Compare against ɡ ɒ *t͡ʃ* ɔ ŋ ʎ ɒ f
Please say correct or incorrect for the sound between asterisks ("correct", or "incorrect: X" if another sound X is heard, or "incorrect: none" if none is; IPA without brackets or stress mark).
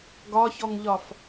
incorrect: ç